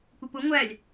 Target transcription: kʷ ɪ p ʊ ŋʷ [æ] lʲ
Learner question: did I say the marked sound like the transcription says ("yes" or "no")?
yes